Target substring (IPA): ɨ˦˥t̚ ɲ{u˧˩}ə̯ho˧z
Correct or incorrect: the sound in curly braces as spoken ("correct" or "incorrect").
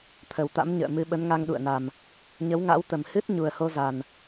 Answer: incorrect